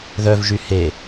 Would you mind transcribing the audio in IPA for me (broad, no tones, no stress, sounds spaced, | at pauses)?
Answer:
ð œ v ʒ y h e